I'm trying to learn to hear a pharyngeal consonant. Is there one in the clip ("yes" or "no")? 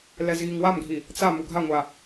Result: no